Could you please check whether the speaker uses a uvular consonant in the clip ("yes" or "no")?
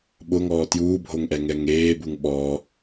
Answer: no